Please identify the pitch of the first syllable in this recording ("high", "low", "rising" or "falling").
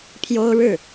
high